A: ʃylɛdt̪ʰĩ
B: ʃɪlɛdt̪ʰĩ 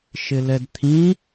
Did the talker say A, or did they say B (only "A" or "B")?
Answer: B